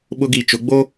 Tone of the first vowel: high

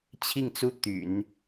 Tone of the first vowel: falling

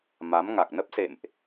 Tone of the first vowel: rising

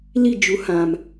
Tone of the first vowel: falling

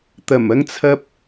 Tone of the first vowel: low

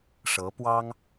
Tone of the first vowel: rising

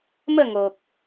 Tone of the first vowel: falling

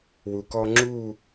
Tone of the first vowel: low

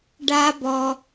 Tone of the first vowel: high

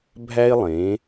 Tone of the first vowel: high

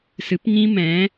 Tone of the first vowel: rising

